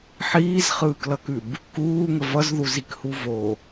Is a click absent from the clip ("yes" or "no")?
yes